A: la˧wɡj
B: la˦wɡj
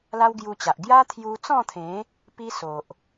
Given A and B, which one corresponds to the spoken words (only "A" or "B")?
B